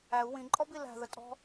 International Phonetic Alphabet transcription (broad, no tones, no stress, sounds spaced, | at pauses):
æ u̯ w ĩ ǃʼ ɔ b i l æ̤ ð ə tʼ ɔ̤